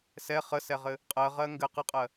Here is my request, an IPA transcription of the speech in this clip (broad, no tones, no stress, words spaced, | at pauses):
sɛ χəsɛʁɘ | qʼɜʁɜ ŋɡɘ qəqʼɜ